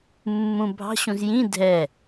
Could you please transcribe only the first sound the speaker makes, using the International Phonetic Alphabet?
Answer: mː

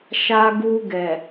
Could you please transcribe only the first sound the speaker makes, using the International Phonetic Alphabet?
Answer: ʃ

